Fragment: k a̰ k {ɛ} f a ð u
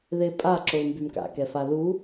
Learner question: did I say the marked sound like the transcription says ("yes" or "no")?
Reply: yes